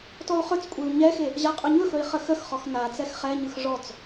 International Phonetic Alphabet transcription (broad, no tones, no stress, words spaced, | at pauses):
tɔu̯χɵt͡skʷʼeu̯ ɲɛxe | ʑaqʼɵɲɵxɵi̯ χəxəxχɔx nat͡sɛx χɛɲɯx ʐɔt͡s